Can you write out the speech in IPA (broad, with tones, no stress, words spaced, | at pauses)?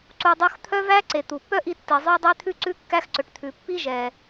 ǀu˧dˤo˥x t̪ʰœ˥væ˥ǀe˩ t̪u˩pːœ˥ʔi˧ tːi˩zˤœ˥ dˤe˥t̪ʰʉ˥ ǀʉ˥kːæ˥xǀɵ˩ʈ t̪ʰʉ˩pːi˥ ʒɛ˩